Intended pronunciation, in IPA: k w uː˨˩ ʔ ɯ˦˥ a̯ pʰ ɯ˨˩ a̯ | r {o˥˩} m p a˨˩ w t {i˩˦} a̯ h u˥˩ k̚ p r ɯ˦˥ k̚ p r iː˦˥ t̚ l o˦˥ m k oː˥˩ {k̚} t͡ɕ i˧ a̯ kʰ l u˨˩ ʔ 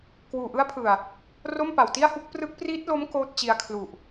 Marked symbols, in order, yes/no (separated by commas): yes, no, no